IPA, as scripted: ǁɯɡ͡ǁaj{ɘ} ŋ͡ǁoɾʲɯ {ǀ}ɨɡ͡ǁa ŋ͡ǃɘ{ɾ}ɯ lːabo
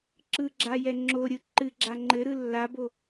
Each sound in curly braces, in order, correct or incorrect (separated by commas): incorrect, incorrect, correct